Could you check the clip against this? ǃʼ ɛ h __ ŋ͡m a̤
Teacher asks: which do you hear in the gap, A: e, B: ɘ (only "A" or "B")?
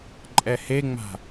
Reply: A